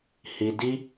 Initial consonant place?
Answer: glottal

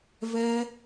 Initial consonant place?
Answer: labial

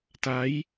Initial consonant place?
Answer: alveolar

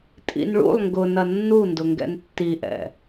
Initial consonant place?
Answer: alveolar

